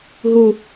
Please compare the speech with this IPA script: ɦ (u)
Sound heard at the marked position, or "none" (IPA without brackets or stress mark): u